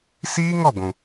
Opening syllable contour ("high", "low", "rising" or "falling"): high